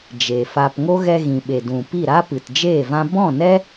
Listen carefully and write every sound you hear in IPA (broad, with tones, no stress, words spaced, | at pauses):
d͡ʒe˨fa˧p ŋo˦ɣɛ˧ɣĩ˨ɓe˨ dũ˨pi˦˨ ɾa˦pɨ˨td͡ʒeː˦˨vã˦ bɔ̃˦˨nɛ˦